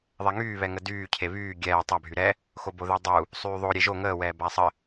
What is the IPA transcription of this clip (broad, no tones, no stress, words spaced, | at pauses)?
ðˤɛŋyː βɛŋədyː cʰeβyː ɡʲɛː tˤa bʱyɾɛ | xoboðɛdˤu | sˤyːðˤo ɾʲeʒo ŋəː wɛːbasˤə